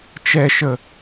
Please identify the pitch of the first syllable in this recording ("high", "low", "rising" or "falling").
low